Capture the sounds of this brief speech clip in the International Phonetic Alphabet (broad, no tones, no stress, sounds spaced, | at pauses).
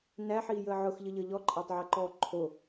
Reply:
n æ ħ iː j əː ʕ ʊ x ʎ ə ʎ ə ʎ ɔ ǃʼ æ tˤ ʕ æ ǃ ɔː ǃʰ o